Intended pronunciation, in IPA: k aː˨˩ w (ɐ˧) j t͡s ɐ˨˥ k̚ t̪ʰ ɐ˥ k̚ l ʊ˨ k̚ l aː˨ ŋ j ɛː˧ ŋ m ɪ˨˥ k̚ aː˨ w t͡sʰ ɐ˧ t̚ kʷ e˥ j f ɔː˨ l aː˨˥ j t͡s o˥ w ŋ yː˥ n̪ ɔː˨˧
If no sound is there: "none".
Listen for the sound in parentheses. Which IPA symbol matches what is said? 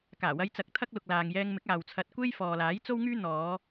ɐ˧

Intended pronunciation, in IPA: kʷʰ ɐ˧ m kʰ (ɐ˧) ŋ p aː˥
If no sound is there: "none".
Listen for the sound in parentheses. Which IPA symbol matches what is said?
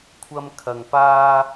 ɐ˧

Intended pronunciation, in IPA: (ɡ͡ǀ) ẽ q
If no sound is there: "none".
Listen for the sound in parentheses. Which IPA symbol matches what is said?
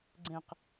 ɡ͡ǀ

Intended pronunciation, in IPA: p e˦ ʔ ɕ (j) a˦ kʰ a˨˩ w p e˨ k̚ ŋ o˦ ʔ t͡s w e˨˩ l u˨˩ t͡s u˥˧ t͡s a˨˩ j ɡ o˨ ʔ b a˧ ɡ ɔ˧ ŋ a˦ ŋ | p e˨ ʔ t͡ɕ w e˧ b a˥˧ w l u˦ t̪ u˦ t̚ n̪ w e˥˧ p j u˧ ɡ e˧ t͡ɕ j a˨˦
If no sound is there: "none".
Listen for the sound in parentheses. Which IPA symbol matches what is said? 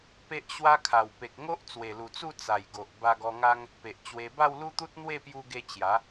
w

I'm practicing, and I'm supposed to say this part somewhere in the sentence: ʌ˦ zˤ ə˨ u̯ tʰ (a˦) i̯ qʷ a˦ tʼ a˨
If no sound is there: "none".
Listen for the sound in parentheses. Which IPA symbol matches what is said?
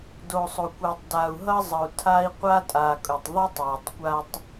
a˦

